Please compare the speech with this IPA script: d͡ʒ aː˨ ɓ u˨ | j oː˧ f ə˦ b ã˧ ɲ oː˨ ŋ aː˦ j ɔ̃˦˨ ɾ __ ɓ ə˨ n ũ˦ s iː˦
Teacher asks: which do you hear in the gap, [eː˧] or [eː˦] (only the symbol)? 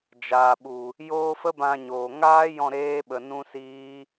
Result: eː˦